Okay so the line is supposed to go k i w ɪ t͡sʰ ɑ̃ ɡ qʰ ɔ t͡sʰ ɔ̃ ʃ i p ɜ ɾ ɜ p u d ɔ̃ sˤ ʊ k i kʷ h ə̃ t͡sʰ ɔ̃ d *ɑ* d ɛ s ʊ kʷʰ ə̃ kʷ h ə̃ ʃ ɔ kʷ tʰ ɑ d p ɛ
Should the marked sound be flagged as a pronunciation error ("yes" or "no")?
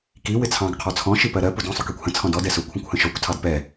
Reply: yes